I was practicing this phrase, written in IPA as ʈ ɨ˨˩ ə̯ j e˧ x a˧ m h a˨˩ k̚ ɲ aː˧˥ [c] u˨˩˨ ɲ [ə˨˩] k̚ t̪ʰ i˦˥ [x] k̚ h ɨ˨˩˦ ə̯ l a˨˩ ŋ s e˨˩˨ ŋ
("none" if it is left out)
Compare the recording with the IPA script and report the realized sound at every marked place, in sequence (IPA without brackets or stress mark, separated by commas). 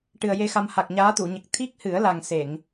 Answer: t̪, ə˨˩, none